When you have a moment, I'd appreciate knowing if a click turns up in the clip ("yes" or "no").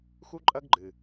yes